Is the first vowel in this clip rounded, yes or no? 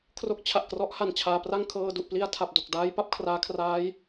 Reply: yes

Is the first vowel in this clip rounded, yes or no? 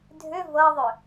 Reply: yes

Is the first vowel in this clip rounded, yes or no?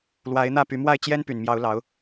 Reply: no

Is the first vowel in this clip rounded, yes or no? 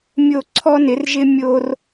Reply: yes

